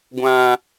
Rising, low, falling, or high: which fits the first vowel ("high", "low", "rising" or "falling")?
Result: high